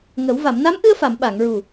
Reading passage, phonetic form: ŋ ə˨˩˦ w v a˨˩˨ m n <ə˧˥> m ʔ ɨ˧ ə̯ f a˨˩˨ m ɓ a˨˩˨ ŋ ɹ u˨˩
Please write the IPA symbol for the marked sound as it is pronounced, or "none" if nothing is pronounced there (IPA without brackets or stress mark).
a˧˥